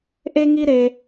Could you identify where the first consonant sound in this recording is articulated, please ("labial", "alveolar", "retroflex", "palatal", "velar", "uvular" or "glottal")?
glottal